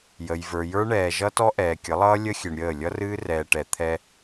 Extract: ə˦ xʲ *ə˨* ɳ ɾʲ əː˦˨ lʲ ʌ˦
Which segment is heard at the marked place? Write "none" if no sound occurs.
ɨ˨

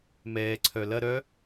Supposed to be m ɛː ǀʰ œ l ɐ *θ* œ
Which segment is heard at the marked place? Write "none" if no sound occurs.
ɾ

